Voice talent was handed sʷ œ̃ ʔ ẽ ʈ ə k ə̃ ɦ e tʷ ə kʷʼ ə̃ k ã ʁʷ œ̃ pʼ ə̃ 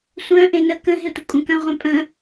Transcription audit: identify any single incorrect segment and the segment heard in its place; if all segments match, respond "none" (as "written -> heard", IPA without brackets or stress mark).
ʈ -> n